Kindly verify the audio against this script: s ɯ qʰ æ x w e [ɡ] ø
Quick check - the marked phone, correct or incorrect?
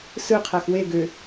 correct